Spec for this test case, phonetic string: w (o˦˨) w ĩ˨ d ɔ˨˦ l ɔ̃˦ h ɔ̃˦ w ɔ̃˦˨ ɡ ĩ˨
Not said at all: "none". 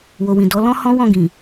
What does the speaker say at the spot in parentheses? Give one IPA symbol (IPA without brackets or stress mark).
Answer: o˨